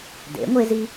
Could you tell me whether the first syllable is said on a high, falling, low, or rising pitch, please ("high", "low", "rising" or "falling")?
rising